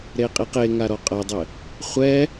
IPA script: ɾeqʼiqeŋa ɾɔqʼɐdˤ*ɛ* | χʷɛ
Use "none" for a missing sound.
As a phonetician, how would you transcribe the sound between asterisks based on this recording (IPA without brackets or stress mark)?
ɘ